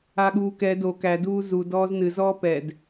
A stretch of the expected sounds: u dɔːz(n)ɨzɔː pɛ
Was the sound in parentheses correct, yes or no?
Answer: yes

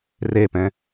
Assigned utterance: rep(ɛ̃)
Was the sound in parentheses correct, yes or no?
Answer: yes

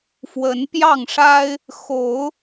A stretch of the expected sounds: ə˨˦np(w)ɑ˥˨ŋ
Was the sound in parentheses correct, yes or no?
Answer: no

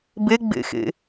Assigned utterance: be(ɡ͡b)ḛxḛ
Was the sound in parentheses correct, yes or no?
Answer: yes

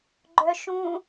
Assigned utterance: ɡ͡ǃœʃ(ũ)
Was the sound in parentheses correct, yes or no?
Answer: yes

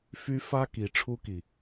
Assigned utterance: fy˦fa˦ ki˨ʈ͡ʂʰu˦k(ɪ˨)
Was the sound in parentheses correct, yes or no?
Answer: no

